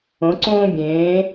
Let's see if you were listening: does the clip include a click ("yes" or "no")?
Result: yes